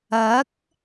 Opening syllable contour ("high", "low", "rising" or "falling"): rising